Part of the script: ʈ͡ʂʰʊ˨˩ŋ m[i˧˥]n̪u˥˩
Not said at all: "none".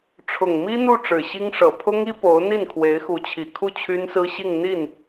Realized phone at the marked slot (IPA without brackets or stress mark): i˥